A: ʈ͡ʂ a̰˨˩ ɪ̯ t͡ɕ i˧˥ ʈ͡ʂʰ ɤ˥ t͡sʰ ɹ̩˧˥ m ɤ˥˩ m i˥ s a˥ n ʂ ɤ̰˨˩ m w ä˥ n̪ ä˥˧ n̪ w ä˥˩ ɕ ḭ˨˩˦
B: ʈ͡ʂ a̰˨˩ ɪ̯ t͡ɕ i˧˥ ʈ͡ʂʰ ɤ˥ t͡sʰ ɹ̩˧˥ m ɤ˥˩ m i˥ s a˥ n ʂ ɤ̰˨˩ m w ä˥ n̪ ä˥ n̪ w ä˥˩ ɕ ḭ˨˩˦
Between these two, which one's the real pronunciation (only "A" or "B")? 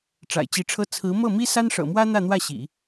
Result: A